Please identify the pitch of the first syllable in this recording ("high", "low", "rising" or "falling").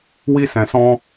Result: high